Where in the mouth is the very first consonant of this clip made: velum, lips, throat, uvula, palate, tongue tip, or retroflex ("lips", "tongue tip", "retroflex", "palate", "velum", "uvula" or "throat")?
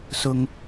tongue tip